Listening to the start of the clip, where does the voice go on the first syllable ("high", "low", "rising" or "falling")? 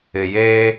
low